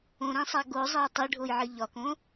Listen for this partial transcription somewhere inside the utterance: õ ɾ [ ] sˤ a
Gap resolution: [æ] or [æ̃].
æ̃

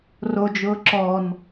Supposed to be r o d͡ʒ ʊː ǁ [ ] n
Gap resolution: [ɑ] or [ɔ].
ɔ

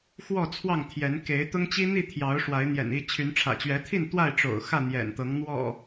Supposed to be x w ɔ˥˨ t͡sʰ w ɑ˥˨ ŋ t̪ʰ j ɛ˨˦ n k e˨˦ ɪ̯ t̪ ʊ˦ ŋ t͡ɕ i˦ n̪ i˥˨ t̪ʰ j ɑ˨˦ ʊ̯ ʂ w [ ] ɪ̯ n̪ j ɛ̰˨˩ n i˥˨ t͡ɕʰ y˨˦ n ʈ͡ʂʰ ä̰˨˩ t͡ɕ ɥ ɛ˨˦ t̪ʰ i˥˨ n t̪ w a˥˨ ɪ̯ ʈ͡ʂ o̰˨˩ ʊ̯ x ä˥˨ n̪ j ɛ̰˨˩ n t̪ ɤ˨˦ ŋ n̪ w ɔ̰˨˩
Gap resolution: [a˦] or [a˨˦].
a˨˦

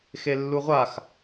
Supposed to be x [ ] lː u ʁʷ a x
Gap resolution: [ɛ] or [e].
e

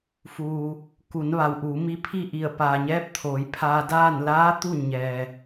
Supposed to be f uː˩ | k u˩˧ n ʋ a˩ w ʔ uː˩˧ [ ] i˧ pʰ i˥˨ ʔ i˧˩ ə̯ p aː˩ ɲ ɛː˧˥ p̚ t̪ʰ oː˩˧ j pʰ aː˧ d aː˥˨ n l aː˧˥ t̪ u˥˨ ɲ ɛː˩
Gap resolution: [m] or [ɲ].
m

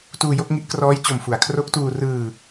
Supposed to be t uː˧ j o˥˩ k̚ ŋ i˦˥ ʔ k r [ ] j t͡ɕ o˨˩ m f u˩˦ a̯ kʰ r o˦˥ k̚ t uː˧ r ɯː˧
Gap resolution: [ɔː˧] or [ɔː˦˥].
ɔː˦˥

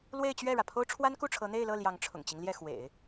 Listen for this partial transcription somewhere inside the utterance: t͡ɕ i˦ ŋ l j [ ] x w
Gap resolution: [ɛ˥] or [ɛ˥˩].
ɛ˥˩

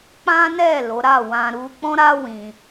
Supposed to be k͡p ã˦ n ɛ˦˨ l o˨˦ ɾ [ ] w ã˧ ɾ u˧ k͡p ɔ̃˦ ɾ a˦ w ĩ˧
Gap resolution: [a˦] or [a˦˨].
a˦˨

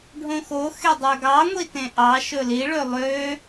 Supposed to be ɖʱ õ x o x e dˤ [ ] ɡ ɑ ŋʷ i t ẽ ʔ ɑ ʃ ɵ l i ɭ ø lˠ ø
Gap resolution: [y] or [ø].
ø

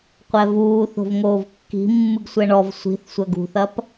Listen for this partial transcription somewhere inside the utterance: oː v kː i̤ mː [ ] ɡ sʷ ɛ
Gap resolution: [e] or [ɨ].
ɨ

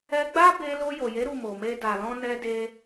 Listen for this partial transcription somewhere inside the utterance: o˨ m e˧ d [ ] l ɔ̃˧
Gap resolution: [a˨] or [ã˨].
a˨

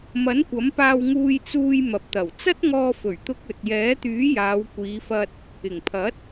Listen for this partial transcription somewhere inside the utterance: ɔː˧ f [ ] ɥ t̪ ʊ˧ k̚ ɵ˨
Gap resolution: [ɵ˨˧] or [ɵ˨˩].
ɵ˨˩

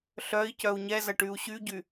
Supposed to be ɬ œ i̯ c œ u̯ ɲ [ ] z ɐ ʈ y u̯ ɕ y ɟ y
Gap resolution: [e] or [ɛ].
ɛ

